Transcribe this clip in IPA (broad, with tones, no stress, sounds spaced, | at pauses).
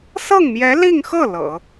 s ɤ˥˩ ŋ m j ɛ˧˥ l i˥˧ ŋ x ɤ˥˩ l ɤ̰˨˩˦